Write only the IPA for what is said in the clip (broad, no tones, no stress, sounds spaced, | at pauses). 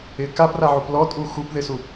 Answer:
ɪ k a p r a ʕ u p l ɔ tʼ u x u p ð ɪ s u